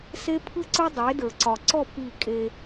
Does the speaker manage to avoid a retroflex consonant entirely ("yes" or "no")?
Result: yes